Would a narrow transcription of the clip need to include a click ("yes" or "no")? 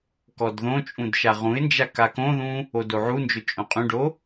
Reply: no